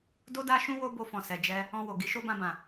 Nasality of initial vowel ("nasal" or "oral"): oral